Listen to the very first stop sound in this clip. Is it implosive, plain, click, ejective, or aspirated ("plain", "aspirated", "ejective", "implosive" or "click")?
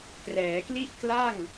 plain